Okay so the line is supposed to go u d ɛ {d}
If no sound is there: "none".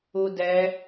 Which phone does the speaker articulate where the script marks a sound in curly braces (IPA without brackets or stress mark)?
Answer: none